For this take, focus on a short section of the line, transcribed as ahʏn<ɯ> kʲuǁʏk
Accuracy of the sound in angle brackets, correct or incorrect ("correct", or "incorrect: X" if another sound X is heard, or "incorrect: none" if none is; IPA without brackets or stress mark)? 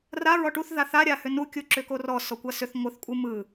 incorrect: u